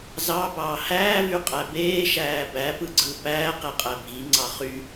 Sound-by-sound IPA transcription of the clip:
z ɑ b ɑː h æː v y qʼ æ b eː ʃ æː b æ p ɯ ɡ͡ǀ ɯ p æː q e qʼ æ bʱ i ŋ͡ǀ ɑ χ y

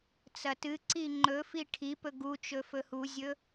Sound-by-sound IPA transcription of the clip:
t͡s ɐ t ɨ ǀ i ŋ͡ǃ ɵ f i ʈʰ i p ɵ ɡ u t͡ʃ ɵ f ɵ h u zʲ ɵ

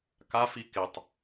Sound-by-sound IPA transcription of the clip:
k a f i k ɪ tˤ

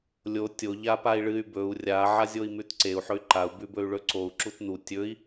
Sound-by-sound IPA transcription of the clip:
lʲ o tʲ o ʎ a p a i̯ ɭ ɨ y̯ b ɵ u̯ rʲ a ʕ a zʲ o i̯ m ʉ t ǀ e u̯ ħ ɵ y̯ ǃ a u̯ b ʉ b ɵ y̯ ɭ ɵ ǀ o u̯ ǁ u t n u tʲ ɵ i̯

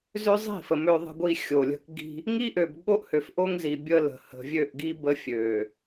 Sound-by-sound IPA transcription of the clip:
z ø˦ zˤ i̤˦˨ f ə˨ m ø˦ ðˤ ə̤˦ ɡʷ i˦ xʲ o˨ lʲ ə̤˦ k ɡ i̤˦ | ŋ i˦ ʔ ø˨ b ɠ o˦ ʔ h ø˨ f ʔ o˦ ŋ z i˨ bʲ ə˦ l ə̤˨ h ə̤˨ vʲ ø˦˨ ʔ ɡ i˦ b ə˦ fʲ ø˨

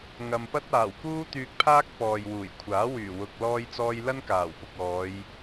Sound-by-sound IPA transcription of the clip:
ŋ ɐ˨ m p ɐ˥ t̚ aː˨˩ w k uː˥ t̪ yː˧ k̚ pʰ aː˥ k̚ p ɔː˨ j w uː˨˩ j kʷʰ aː˨˥ w yː˨˩ w ʊ˨ k̚ l ɔː˧ j t͡s ɔː˧ j l ɐ˥ n k aː˨˩ w p ʊ˨ k̚ ɔː˨˧ j

